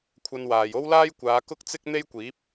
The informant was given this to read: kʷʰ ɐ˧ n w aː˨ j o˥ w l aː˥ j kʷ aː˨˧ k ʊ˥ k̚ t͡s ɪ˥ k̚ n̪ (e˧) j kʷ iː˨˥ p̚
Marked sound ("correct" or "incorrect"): incorrect